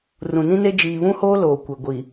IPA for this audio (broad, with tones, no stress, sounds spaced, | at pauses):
r ũ˨ n ĩ˦ n e˦ d͡ʒ iː˨ β ũ˦ h oː˦ l oː˨ kʷ e˨ ɡʷ i˨